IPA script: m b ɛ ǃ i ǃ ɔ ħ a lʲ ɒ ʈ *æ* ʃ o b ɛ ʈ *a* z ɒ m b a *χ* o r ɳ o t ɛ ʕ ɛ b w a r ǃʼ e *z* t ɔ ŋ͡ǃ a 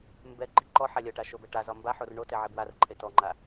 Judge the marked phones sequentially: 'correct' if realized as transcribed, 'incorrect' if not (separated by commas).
incorrect, correct, incorrect, incorrect